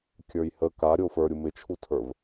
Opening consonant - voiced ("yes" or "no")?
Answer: no